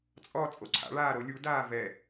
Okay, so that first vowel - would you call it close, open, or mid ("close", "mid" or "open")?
mid